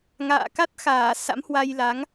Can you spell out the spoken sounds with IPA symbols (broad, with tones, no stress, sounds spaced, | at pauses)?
ŋ a̰ː˧˨ k a˦˥ t̚ x aː˧˩ s a̰˧˥ m h w a˧ j l a˨˦ ŋ